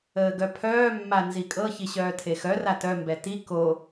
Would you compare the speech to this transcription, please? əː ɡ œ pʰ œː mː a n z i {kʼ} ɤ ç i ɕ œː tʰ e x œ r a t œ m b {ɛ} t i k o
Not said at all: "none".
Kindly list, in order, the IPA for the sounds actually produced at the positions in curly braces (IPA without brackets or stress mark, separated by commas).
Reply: kʼ, ɛ